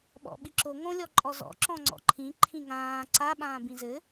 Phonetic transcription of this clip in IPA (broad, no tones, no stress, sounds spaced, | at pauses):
ɓ ɔ̰ ɓ i ǁ o ŋ õ lʲ ɔ ǃʼ ɔ z ɔ̰ ǁ ɔ̃ ŋ͡ǀ ɔ̰ ǃʰ ĩ ǃʰ ĩ ŋ ãː ǀ a ɓ ãː b ĩ z ɘ